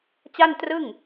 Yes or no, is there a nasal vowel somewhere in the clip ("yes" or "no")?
no